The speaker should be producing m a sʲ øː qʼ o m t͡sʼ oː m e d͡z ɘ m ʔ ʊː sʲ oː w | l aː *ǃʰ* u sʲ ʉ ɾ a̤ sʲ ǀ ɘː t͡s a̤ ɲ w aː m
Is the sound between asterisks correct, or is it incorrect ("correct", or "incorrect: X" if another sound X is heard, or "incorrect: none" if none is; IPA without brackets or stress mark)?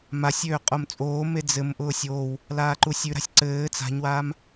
incorrect: ǃ